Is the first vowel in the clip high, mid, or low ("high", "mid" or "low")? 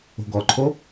mid